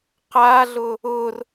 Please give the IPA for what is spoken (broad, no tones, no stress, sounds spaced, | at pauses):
q a ɮ ʊ | ʊ r